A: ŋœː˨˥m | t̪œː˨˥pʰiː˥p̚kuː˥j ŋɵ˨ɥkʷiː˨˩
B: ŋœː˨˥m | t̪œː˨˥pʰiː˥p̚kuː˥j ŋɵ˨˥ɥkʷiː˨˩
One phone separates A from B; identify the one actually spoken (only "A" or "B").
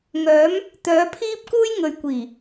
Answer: A